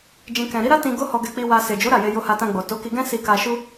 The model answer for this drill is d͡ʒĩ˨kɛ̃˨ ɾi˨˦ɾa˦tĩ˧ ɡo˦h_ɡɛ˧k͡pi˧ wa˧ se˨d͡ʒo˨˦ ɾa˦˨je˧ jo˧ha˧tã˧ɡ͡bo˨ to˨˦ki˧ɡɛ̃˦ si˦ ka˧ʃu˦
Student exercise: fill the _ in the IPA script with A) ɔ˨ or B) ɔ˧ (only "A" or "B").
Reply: B